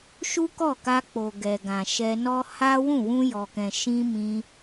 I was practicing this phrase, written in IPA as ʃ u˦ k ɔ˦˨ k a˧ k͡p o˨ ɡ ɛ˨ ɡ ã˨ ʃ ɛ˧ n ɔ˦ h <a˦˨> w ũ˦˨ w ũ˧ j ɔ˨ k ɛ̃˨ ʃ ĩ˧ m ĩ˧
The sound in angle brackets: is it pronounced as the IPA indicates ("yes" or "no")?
no